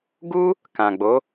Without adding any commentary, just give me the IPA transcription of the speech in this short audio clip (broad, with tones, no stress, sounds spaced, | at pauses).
ɡ u˦ | k ã˨ ɡ͡b o˨˦